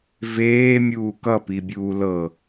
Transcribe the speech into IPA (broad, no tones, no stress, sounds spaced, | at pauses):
v eː mʲ uː k ʌ p i bʲ uː l ɤ